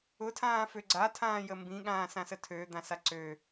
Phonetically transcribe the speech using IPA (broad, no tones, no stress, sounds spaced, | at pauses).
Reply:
ʊ tʰ ãː f ø ɡ͡ǀ a tʰ ãː j ə m b ĩ ɠ ãː s ã s ə tʰ øː d̪ ã s a ǀ ø